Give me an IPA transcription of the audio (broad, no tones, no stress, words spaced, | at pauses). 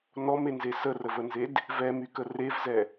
nɔmenze sərəvənzed | vɛmykə revzɛ